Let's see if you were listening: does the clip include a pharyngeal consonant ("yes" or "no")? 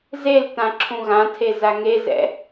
no